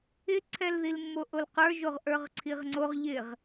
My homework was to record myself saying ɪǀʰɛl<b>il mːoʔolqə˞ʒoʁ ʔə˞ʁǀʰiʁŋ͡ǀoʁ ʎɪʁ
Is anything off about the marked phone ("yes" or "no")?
yes